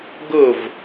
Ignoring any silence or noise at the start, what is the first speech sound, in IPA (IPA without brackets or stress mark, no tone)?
ɡ